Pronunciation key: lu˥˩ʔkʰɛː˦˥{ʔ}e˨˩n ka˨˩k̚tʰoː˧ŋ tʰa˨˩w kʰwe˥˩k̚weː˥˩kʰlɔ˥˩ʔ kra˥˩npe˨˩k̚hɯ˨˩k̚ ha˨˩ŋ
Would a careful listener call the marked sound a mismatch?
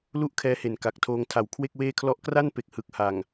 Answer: yes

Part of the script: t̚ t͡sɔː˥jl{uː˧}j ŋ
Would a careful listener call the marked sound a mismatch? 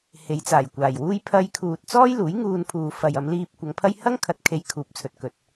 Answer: yes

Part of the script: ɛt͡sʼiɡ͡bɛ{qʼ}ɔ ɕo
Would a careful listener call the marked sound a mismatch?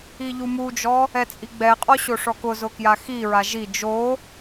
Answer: no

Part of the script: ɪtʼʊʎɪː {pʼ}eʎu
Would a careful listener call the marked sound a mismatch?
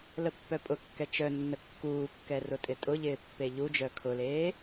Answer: yes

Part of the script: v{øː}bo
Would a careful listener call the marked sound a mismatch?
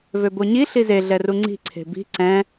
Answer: yes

